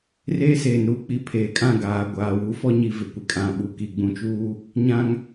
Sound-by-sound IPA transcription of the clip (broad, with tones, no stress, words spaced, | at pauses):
reː˦seː˨nɾuː˦k͡pi˨˦ pʰeː˨kʼã˦˨ ɡaː˨ɡʷaː˨ wu˨˦fɔ˦ɲi˨ vɪ˨kʷɪ˨kʼã˨ ɓu˨ki˨ ɡ͡bũ˨t͡ʃuː˦ | ɲã˦ŋ